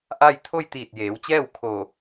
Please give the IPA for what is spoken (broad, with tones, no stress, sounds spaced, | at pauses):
ʔ a˥˨ j t̪ʰ o˥˨ j t̪ iː˧˩ t̚ j eː˩˧ w t͡ɕ ɛː˥˨ w kʰ o˧˩